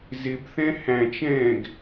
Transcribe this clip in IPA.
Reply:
z ɪ b θ ɛ̃ h æ̃ t͡ʃ ɛ̃ː ɡ

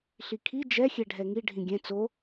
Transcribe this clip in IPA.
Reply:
ɬ i kʰ i d͡ʒ ɛ xʲ ɛ ɖʱ ɛ ŋ i ɖʱ ĩ ɡʲ ɛ̃ t͡s o

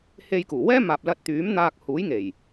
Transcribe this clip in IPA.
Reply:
h e˧ j k uː˨˩ w ɛː˥ m aː˨ p̚ l ɐ˧ t̚ t̪ yː˨˥ m n̪ aː˧ k̚ h uː˨˥ j ŋ e˨˩ j

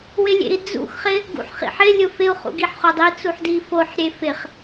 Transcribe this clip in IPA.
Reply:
w ɪ lʲ ḛ i̯ d͡z ṵ x χ ɪ | ɡ ṵ ħ χ ḭ ħ ɪ lʲ ʊ f ɪ u̯ χ ṵ ɡ i ħ χ o dˤ i t͡s u ħ d i f o ħ ɾʲ e f ɪ χ

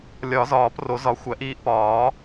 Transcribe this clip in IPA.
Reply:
lʲ ɒ˨˩˦ z ɒː˨˩˦ p r o˨˩˦ z ɒ˩˥ xʷ æ˨˩˦ ʔ iː˧ ʔ p ɒː˨˩˦

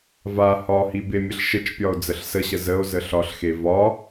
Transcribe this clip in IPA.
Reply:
v a h ɒ h i b e mʲ ə ɬ ʃ ə t͡ʃ pʲ ɒ o̯ d͡z ə ɬ s ə ɕ ə z ə o̯ z ə ɬ ɒ ɬ x e v ɒ

